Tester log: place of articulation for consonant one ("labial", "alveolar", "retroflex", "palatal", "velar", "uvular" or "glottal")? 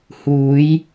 glottal